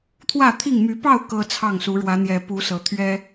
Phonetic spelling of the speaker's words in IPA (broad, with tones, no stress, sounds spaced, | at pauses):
t̪ʰ w ä˥˨ t̪ʰ i˥˨ ŋ m y˨˦ p ɑ˥˨ ʊ̯ k ɤ˦ t͡sʰ ɑ˥˨ ŋ s u˨˦ ɻ w ä˨˦ n̪ j ɛ˨˩ p u˨˦ s ɤ˨˦ t̪ʰ ɥ ɛ˦